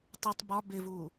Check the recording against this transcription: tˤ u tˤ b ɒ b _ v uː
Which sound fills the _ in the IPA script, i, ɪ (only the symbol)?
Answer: ɪ